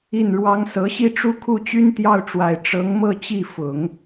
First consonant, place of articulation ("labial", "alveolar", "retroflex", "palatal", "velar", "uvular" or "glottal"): alveolar